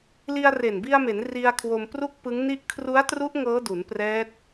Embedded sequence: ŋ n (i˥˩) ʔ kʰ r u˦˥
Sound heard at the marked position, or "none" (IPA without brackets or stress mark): i˥˩